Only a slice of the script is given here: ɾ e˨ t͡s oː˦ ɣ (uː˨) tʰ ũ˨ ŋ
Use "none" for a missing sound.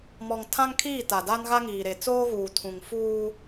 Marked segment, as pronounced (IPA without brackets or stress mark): uː˨